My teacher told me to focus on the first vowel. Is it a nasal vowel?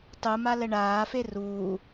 no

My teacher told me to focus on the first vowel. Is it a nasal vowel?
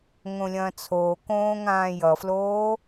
yes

